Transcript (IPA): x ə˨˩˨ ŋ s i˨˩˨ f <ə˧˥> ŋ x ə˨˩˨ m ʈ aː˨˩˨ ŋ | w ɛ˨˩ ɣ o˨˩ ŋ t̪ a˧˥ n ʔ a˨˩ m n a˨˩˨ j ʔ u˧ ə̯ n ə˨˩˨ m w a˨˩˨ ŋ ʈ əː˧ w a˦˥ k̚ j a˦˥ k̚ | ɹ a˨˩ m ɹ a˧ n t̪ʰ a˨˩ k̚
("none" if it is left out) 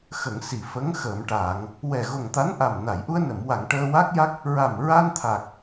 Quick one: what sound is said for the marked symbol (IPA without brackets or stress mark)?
ə˧˥